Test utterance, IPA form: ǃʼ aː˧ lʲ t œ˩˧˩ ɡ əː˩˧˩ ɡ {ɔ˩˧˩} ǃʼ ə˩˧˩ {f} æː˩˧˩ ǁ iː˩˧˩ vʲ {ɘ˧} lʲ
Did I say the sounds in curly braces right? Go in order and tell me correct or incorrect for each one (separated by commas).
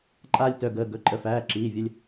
incorrect, correct, correct